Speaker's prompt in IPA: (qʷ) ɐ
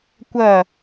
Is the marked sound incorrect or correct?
incorrect